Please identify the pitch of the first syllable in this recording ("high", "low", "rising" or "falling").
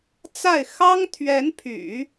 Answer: falling